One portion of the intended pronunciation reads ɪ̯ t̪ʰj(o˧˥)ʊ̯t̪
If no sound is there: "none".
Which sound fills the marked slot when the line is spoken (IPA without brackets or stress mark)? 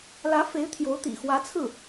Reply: o˧˥